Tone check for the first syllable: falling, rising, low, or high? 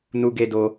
high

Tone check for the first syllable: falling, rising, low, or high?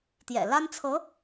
low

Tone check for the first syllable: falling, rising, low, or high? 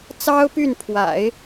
high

